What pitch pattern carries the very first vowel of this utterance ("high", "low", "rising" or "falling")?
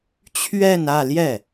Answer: falling